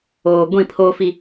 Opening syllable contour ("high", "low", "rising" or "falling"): low